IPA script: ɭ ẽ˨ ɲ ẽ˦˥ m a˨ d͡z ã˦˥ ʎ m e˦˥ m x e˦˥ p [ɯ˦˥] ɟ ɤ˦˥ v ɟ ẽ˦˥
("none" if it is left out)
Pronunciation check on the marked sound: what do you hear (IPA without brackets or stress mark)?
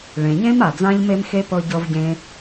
ɤ˦˥